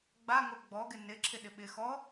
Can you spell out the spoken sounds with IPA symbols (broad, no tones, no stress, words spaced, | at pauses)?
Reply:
ɡ͡baŋo ɡ͡bɔɡɪ nɪǁʰɪɗɪ ɓɪ xɔ